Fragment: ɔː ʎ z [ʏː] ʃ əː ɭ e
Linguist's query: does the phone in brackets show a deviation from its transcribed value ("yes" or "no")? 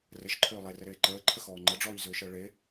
no